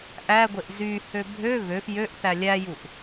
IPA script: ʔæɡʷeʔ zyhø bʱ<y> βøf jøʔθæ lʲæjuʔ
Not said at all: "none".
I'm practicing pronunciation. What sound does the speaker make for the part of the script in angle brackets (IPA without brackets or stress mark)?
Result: ø